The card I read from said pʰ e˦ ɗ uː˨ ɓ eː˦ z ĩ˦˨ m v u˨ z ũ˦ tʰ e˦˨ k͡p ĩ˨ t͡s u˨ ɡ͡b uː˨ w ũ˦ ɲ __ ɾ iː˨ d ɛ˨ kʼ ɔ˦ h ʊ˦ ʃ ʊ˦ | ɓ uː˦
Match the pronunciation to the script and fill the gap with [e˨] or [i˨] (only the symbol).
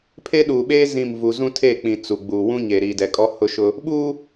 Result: e˨